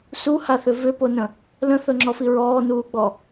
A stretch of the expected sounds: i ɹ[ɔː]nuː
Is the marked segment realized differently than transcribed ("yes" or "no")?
no